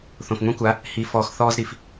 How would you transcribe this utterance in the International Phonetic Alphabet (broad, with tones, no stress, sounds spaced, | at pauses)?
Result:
θ õ˨ f ŋʷ ĩ˦ kʷ a˨˦ | h i˨ f ɔː˧ x θ ɔː˦ z ɾ i˨ f